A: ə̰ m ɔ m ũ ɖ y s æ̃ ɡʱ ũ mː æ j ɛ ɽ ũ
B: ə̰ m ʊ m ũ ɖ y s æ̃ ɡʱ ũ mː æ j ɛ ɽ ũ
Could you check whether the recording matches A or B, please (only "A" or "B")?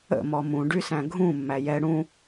A